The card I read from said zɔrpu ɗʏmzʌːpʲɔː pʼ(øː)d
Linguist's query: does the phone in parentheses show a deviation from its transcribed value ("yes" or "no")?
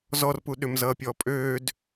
no